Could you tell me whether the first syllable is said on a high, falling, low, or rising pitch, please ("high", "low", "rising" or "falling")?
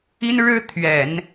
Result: high